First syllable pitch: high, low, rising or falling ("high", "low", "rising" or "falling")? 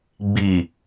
low